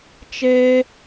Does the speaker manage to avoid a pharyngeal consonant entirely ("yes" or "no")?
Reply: yes